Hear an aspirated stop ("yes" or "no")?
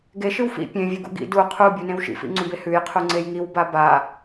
yes